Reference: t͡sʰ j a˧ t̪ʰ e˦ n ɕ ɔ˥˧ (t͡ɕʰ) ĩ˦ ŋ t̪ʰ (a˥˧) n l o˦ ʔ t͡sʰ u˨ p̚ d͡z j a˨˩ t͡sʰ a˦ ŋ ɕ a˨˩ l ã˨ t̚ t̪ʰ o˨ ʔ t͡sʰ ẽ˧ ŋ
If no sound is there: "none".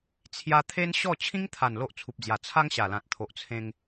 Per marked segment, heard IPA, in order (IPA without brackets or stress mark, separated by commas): t͡ɕʰ, a˨˩